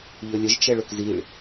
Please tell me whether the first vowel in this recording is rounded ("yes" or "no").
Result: yes